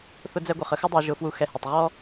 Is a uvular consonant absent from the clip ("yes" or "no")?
no